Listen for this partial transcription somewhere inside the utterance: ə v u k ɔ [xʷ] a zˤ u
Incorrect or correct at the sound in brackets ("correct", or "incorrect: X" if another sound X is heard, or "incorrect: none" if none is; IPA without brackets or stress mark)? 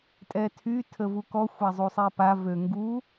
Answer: correct